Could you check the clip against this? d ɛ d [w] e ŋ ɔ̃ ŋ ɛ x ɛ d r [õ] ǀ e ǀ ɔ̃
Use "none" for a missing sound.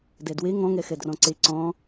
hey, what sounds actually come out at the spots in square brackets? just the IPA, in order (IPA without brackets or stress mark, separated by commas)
w, ɔ̃